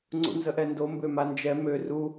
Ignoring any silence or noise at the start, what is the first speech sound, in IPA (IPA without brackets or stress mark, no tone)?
ŋ͡ǀ